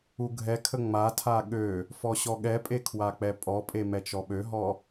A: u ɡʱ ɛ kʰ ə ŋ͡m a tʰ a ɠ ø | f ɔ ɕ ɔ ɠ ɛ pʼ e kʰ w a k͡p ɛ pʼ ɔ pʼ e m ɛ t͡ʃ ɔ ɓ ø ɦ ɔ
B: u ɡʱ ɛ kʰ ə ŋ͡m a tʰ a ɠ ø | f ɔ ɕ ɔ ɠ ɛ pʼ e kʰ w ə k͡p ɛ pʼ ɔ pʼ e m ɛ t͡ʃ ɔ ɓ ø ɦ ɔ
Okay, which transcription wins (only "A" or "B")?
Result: A